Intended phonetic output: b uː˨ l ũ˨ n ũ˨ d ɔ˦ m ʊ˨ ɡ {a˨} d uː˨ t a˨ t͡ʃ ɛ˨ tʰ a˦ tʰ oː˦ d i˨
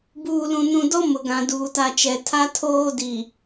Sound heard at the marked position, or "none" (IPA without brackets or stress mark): ã˨